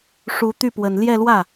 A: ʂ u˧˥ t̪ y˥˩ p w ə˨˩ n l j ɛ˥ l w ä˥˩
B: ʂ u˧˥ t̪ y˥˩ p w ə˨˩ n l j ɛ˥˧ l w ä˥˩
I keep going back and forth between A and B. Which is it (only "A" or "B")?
B